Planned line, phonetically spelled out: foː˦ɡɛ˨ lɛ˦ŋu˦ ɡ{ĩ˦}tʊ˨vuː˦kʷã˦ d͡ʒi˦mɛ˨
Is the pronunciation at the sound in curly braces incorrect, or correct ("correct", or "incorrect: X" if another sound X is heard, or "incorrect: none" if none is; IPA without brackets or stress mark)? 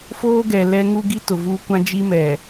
incorrect: i˦